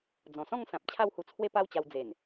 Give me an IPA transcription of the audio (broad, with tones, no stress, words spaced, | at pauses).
d͡zɔ̃˨˩sɔ̃˥˧ŋsã˨p̚ t͡ɕʰa˥˧whu˧ t͡sʰwe˦pa˦wt͡ɕa˧w d͡ze˨˩n